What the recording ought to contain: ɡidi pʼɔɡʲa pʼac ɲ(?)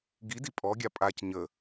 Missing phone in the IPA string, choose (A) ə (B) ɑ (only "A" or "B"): A